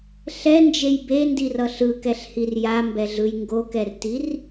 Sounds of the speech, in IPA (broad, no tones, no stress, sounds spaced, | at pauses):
ɬ ɛ n d͡ʒ e j b e n d i r ʌ ɬ ɯ k ɛ ɬ h i r j a m b ɛ ɮ ɯ j ŋ ɡ o k ɛ r t i r